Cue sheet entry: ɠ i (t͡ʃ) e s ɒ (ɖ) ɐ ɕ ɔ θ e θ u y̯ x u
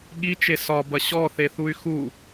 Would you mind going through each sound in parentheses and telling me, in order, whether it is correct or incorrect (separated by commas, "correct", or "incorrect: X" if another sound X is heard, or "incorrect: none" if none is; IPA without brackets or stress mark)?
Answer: correct, incorrect: b